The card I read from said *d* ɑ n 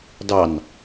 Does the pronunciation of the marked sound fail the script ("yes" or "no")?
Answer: no